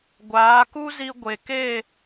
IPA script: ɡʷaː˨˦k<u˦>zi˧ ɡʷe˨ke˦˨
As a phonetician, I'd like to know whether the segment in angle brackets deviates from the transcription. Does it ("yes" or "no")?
no